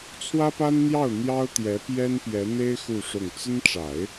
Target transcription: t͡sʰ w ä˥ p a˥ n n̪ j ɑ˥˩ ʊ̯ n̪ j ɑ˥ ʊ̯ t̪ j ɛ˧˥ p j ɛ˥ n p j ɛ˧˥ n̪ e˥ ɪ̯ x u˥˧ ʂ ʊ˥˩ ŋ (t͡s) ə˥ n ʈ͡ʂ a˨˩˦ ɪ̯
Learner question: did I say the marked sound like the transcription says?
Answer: yes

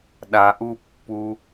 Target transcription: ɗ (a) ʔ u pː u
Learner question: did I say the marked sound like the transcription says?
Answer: yes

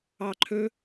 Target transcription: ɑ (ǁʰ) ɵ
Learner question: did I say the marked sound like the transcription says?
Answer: no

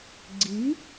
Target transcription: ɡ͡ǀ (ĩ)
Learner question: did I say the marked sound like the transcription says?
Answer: no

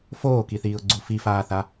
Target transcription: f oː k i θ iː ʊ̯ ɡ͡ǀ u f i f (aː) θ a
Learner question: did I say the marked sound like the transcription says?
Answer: yes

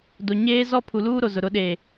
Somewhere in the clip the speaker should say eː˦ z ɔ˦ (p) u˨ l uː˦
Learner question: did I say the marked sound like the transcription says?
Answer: no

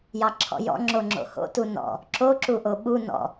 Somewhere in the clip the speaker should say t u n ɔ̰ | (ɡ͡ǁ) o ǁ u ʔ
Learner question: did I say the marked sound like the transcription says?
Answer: no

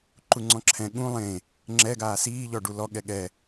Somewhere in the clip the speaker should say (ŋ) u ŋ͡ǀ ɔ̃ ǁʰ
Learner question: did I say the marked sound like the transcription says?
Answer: no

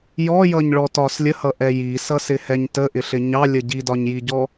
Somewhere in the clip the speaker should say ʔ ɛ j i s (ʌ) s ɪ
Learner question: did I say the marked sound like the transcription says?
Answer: yes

